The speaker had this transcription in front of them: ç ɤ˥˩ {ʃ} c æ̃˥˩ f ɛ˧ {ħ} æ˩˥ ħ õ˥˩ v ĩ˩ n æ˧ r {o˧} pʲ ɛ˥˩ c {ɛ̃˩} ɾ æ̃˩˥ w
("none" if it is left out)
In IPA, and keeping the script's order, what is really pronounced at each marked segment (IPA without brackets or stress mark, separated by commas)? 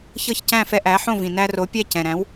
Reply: ç, ʔ, o˩˥, ɛ̃˩